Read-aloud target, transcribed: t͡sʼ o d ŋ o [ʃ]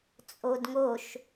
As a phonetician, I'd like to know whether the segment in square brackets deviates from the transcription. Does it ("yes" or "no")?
no